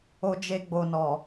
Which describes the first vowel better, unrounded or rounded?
rounded